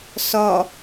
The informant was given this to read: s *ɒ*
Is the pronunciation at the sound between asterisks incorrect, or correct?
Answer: correct